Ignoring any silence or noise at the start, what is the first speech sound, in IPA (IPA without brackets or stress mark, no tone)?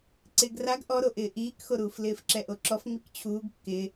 ǀ